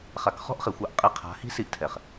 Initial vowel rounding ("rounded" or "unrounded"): unrounded